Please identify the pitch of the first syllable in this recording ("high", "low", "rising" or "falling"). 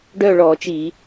falling